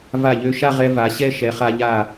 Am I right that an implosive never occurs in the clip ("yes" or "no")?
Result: yes